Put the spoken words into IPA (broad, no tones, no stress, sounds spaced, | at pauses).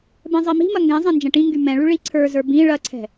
b ɛ̃ zˤ i m i̤ m ɐ ŋ ɡ ɛ̃ zˤ ɛ̃ n d͡ʒ ɛ̃ ʈ ĩ ŋ ɡ y m ɛ̃ ɭ y ɭ i ǀʰ ə˞ z ə˞ b ĩ ɭ ɐ ǀʰ ɛ̤